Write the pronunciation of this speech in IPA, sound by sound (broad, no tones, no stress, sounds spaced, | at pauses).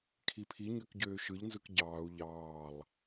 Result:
kʰ i pʰ i ɲ ø k ɟ øː ʃ ɯ ʎ n z ɯ k ɟ ɑː u̯ ʎ ɑː lˠ